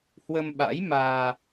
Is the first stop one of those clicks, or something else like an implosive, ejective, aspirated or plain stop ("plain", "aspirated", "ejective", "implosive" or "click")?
implosive